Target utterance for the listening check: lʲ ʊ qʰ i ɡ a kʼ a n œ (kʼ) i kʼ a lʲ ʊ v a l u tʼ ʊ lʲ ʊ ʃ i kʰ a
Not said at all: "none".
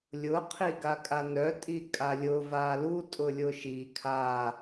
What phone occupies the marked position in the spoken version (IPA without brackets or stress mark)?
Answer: tʼ